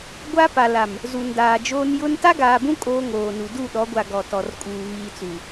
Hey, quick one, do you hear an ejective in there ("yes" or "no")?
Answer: yes